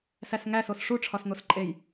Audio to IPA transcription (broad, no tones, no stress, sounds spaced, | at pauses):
s æ s ŋ æ s o s ʂ u ʈ͡ʂʰ ɒ s n̪ o s ǃʼ e j